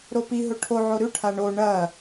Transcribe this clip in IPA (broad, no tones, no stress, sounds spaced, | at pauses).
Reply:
ɾ o p i ɦ ɵ ʈʰ o ʕ o ɾ ʉ ʈʰ a ɳ o ɳ ɐ